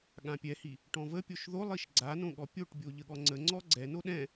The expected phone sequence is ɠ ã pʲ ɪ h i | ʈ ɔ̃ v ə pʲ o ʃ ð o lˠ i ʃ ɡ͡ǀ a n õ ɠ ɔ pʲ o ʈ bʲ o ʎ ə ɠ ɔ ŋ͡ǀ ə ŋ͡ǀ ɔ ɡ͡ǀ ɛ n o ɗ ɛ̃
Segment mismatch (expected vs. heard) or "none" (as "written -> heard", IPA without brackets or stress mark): ɪ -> ɛ